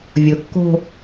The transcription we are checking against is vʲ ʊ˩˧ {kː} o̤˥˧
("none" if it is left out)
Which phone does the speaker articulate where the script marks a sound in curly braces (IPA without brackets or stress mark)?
kː